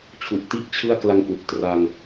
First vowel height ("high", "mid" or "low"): high